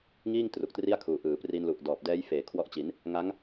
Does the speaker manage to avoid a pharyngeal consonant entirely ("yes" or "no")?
yes